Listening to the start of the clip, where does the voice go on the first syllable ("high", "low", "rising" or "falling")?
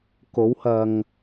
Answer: rising